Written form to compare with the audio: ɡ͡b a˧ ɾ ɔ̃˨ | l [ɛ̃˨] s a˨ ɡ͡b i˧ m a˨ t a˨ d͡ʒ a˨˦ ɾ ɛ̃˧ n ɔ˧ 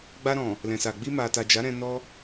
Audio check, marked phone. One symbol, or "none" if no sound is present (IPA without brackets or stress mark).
ɛ̃˨